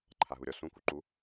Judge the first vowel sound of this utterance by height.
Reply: low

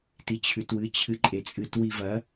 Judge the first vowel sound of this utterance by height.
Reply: high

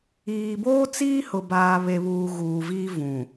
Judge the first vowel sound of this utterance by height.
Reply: high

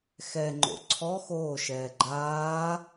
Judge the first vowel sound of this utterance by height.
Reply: mid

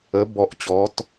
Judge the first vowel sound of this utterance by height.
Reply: mid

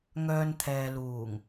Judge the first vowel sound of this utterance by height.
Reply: mid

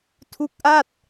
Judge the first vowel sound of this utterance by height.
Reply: high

